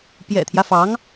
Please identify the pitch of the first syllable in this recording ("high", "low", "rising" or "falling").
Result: low